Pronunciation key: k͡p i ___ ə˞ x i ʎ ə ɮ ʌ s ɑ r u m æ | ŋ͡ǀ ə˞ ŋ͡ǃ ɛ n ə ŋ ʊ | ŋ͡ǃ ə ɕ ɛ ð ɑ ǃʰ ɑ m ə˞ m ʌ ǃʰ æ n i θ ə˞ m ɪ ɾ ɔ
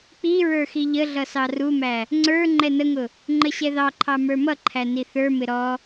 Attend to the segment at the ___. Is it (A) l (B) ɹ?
B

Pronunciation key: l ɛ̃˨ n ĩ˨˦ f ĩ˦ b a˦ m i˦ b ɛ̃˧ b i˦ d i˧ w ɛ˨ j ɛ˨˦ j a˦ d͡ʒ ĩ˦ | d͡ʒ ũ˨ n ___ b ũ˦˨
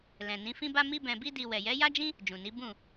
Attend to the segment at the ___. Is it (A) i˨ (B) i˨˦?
B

